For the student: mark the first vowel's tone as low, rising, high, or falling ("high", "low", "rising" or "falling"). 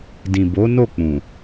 low